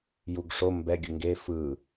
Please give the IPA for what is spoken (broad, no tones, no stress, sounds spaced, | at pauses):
j u ɡ ʂ o m b ɛ ɡʲ ɯ ŋ ɡ e f ɯ